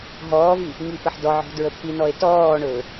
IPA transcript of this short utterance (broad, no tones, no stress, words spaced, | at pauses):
ɦɔːvi | ŋipəħdɔʕɔ̤ dɹəpʰinɔe̯ tɔːɳɵː